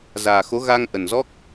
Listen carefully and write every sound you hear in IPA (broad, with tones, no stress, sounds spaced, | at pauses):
z aː˨˩ x o˨˦ ɣ a˧ ŋ ʔ ə˨˩ n z ɔ˦˥ k̚